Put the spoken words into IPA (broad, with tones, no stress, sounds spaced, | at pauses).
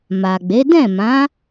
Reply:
m a˨ ɡ͡b e˨˦ d ɛ̃˦˨ m ã˨˦